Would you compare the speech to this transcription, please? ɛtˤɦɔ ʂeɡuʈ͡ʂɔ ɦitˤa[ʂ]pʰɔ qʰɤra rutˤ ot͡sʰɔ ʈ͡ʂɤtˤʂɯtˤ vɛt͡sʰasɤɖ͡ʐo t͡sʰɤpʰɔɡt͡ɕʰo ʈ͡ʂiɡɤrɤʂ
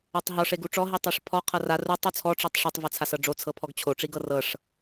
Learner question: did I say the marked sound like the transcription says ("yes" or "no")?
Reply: yes